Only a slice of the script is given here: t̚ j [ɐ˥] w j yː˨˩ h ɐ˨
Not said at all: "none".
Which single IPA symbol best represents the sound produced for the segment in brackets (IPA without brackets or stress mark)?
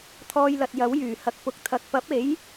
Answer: ɐ˨˥